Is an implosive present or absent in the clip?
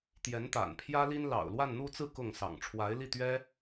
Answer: absent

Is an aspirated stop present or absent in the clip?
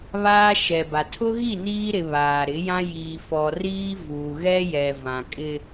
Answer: present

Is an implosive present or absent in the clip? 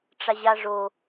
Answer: absent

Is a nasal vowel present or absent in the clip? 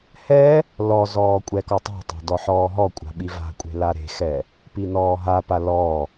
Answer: absent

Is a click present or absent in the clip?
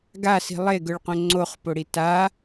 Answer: present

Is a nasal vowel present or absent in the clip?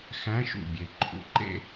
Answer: present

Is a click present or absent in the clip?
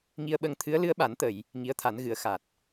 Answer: absent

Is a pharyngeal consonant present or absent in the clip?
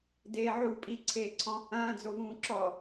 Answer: present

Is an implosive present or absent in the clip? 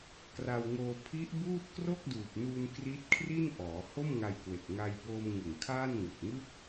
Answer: absent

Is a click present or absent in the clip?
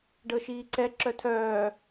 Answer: present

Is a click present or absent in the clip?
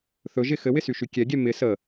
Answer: absent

